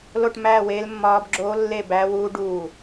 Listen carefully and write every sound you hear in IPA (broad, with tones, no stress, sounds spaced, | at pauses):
l o˥˧ ʈ m æː˥˧ w eː˦˥ l mː ɒː˦˥ b ɡ͡ǁ oː˦˥ lː e˥˧ b æ˦˥ w uː˦˥ ɖ uː˧˩